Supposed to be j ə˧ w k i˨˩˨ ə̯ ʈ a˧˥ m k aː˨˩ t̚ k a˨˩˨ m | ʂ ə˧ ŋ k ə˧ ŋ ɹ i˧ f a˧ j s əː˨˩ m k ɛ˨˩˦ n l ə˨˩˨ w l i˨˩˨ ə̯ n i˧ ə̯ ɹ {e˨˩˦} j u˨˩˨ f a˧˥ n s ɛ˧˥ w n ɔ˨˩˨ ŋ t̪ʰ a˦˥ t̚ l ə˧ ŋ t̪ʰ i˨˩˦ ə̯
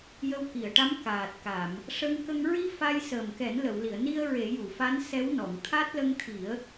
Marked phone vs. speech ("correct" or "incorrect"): correct